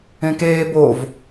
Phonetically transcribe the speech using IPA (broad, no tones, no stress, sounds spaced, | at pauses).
ẽ k eː b o v